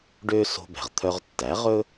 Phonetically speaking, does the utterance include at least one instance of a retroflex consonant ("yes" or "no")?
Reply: yes